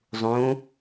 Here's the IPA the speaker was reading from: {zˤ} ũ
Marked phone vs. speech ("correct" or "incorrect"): correct